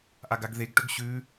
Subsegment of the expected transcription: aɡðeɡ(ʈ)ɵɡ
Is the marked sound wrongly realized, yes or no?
no